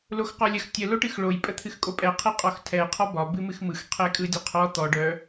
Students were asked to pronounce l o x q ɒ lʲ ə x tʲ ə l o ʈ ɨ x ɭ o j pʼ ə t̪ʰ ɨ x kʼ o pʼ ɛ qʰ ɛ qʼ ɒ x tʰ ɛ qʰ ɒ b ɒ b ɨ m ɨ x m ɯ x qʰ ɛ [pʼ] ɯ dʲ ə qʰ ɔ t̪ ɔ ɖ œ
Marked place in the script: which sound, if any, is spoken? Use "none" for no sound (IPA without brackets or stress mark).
kʼ